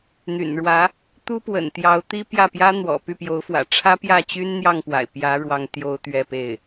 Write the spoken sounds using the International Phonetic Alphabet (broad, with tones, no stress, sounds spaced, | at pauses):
n̪ y̰˨˩ n ɻ w ä˧˥ | t̪ u˥ p w ə̰˨˩ n t̪ j ɑ˧˥ ʊ̯ t̪ i˥ p j ä˥˩ p j ä˥ n̪ w ɔ̰˨˩ p y˥˩ p j o˧˥ ʊ̯ f w ä̰˨˩ ʈ͡ʂʰ ä˥ p j ä˥˩ t͡ɕ y˥ n n̪ j ɑ˥˩ ŋ p w a̰˨˩ ɪ̯ p j ä˧˥ ɻ w ɑ˥ ŋ t̪ j o˥ ʊ̯ t̪ ɥ ɛ˥˧ p e˥˩ ɪ̯